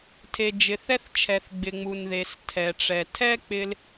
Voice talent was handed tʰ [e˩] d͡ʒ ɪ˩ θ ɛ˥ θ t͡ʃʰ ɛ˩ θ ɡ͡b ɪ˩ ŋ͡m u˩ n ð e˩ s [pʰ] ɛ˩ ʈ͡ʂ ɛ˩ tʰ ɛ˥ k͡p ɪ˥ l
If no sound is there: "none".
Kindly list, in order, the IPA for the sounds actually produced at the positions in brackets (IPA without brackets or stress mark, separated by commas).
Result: e˩, tʰ